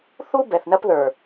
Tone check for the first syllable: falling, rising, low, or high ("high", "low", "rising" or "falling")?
high